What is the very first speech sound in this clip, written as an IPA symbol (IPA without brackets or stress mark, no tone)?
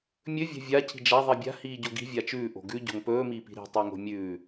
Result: mʲ